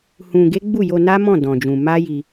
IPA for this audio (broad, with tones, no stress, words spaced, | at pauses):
hũ˧ɡe˦ ɡ͡bu˦˨jo˧na˦mɔ̃˦˨ dɔ̃˧d͡ʒũ˧ ma˦ji˧